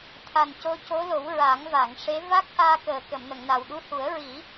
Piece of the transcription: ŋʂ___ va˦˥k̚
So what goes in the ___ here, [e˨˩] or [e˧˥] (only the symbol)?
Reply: e˧˥